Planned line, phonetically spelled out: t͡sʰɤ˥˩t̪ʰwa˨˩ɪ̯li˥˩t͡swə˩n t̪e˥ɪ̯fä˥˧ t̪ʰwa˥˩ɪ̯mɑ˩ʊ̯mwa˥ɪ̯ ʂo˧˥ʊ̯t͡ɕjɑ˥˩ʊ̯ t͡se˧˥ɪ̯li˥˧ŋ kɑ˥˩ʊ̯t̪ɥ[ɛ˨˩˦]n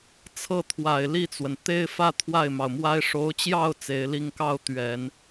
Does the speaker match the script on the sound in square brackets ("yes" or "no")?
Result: yes